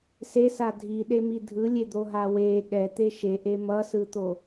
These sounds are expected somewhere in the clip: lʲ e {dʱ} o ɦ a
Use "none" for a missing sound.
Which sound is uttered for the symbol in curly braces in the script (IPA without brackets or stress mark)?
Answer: d̪